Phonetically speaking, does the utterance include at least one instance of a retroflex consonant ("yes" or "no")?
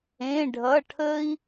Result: yes